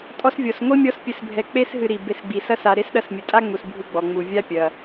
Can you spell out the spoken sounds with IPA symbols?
tʼ ɔ˦ s vʲ ɔ˩ s ŋʷ i˥ mʲ ɔ˦ s pʲ ɨ˨ s bʱ ɛ˨ k͡p e˦ s ɦ ɨ˨ ɾ i˩ b e˨ s ɡ͡b i˩ s ɐ˦ s a˨ ɾ e˥ s ɗ ɐ˦ s mʲ ɨ˩ tʼ a˥ ŋ͡m u˨ s bʱ ɨ˦ ɡ͡b ɔ˩ ŋ͡m u˩ vʲ a˦ pʲ ɐ˩

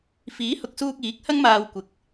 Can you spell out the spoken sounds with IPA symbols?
f iː˨˥ h ʊ˨ k̚ s uː˧ k̚ iː˨˥ k̚ h ɐ˥ ŋ m aː˧ w kʷ ɪ˨˥ k̚

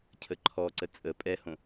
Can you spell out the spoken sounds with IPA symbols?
cʰ ə ǃʰ ɔ ǀ ə t͡sʼ ə pʼ ɛ h õ

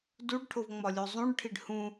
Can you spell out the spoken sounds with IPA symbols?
d u ɖ ʈʰ o v ŋ͡m ɒ lʲ o zˤ ũ ɖ ʈʰ i ɖ h ũ

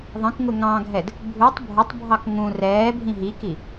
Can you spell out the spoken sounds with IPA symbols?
ðˤ ə̃ k ŋ ʊ ŋ ɑ̃ ɡʱ ɛ d | bʱ u tˤ bʱ ʊ tˤ bʱ ɑ k ŋ ũ r ɛː bʱ ĩ ɦ i k i

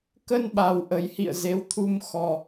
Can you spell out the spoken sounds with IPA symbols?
k ə˧ n ɓ a˨˩ w ʔ ə˨˩ j h ḭ˧˨ ə̯ z e˨˦ w t̪ʰ u˧ m x ɔ˧

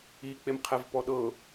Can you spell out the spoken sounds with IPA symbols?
i k͡p e m qʰ ɛ v p ɔ ɗ ɤ

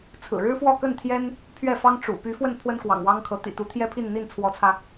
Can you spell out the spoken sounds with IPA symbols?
t͡sʰ ɹ̩˨˩ ɻ ɻ̩˥ f w ɔ˥˧ k ə˥˩ n t̪ʰ j ɛ˥ n | pʰ ɥ ɛ˥˩ f ɑ˥ ŋ ʈ͡ʂ ṵ˨˩ p y˧˥ f w ə˥˩ n pʰ w ə˥ n k w ɑ̰˨˩ ŋ w ɑ˥ ŋ kʰ ɤ˧˥ t̪ ḭ˨˩ t̪ u˧˥ t̪ʰ j ɛ˥ pʰ i˥˧ n n̪ i˥˩ n t͡sʰ w ɔ˧˥ t͡sʰ ä˧

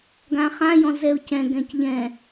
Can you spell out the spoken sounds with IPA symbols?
ɡ ã χ ã j ɔ̃ z ɛ ʊ̯ c ɛ̃ ɡ ɛ̃ c ʎ ɛ̃

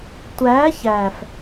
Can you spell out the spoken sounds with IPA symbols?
tʷ æː˨˦ ç æː˨ f

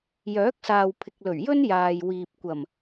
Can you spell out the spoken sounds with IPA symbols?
j œː˨˥ k̚ s aː˨ w pʰ ɪ˨ k̚ l ɵ˨˩ ɥ j ɵ˥ n j aː˨ j w iː˨ p̚ kʷ ɐ˨˩ m

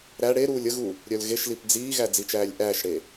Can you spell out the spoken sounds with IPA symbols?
ɾ æ ɽ e ɾ uː lʲ ə ɣ u | ɾʲ œ l ɣ e ʃ l i p d͡z iː ɣ æ d͡z i t͡ʃ æː lʲ ʔ æː ʃ ɽ e

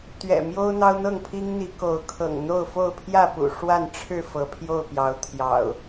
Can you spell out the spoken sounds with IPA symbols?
t̪ ɥ ɛ̰˨˩ m j o˦ ʊ̯ n̪ ɑ˦ ʊ̯ n̪ ɤ˥˨ ŋ pʰ i˦ ŋ n̪ i˨˦ k o˨˦ ʊ̯ kʰ ɤ̰˨˩ ŋ n̪ o˥˨ ʊ̯ f o˥˨ ʊ̯ pʰ j ä˥˨ p ṵ˨˩ ʂ w a˥˨ n ʈ͡ʂʰ ɻ̩˥˨ f ɤ˨˦ pʰ j o˥˨ ʊ̯ p j ɑ˨˦ ʊ̯ t̪ʰ j ɑ̰˨˩ ʊ̯

